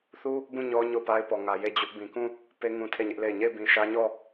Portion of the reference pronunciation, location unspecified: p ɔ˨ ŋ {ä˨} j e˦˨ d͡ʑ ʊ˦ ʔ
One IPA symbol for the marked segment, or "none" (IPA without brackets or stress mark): ä˨